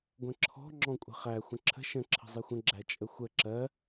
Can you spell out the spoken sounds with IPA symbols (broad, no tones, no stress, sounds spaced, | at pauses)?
ɡʷ ə̃ ǁʰ ɔ̤ ŋ͡ǁ ɔ̃ kʷʼ ə̤ χ æ xʷ ə̃ ǁʰ ə̤ ʃ ə̃ ǁʰ ə̤ zˤ i xʷ ə̃ ɡ͡ǁ æ t͡ʃʼ ə xʷ ə ǁ ɜ